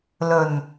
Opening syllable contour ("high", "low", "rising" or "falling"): low